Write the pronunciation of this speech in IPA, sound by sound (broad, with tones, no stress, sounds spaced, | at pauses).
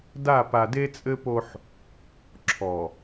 d a˦˨ p a˨ d e˦ t͡sʼ ɘ˦ p o˦ ħ | ǁʰ ɔ˨